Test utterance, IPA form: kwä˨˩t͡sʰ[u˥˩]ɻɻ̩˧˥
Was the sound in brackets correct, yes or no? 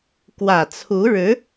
no